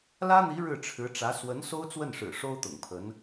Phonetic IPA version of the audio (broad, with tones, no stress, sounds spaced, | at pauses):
l ä˥ n̪ i˧˥ ɻ ɻ̩˥˩ ʈ͡ʂʰ ɻ̩˧˥ ʈ͡ʂ ä˧˥ s w ə˧˥ n s o˥ ʊ̯ t͡s w ə˥˩ n ʂ ɻ̩˨˩ ʂ o˥ ʊ̯ t̪ ʊ̰˨˩ ŋ pʰ ə˧˥ n